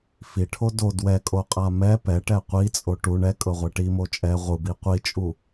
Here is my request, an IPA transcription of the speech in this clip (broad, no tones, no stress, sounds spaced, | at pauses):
f i ʈʰ o d o d w ɛ kʼ o qʼ a m ɛ p ɛ ʈ ɛ qʷ i t͡sʼ o ʈ u ɳ ɛ kʼ ɤ ʁʷ ɛ ʈ i m o t͡ʃʼ ɛ ʁʷ ɯ b i qʷ i t͡ʃʼ u